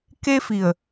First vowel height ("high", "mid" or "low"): mid